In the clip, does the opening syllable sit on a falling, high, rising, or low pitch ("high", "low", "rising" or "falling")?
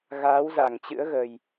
rising